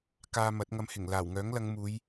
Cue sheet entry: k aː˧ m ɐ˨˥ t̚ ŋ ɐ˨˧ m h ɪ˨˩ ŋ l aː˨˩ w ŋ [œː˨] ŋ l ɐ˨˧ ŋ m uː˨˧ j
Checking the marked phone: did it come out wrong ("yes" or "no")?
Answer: yes